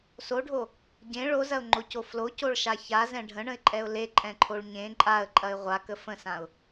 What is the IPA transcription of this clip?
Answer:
s o ɖʱ o | ɟ ẽ ɭ o z ɐ ʊ̯ ŋ͡ǃ o c o f l o c o ɭ ʃ a ç a z ɛ̃ ɖʱ ə̃ ɳ ə̃ ɪ̯ ǃʼ ɛ ʊ̯ l e ǃʼ ɛ̃ ǃʰ o ɭ ɲ ẽ ǃʼ a ə̯ ǃʼ ɐ ɪ̯ ʁʷ a k ə f ə̃ s ã ʊ̯

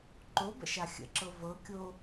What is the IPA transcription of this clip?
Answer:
ǃ o b ə̰ ʃ a xʲ ə̰ ǁ ɤ v ɤ kʲ o

